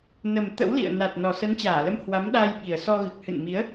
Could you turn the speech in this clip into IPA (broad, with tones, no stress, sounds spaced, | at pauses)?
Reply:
n ə˨˩ m t̪ ə̰˧˥ w l ḭ˧˨ ə̯ n a˨˩ t̚ n ɔ˨˩ s ə˨˦ n t͡ɕ aː˧˩ l ə˨˦ m h w a˨˦ m ɗ aː˧ j ɓ i˨˩ ə̯ s ɔ˧ ɣ ɨ˨˩ k̚ h ɨ̰˧˨ n m i˨˦ ə̯